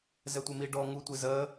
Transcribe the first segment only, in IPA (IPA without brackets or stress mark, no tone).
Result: z